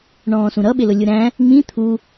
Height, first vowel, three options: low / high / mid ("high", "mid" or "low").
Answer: mid